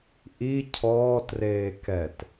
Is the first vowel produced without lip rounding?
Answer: yes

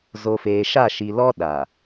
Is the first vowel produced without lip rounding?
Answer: no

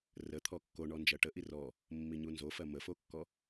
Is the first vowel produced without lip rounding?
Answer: yes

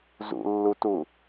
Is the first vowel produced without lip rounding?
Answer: no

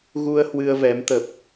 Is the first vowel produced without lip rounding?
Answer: no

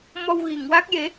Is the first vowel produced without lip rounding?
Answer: no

